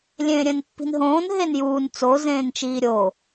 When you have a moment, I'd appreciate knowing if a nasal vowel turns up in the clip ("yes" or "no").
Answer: yes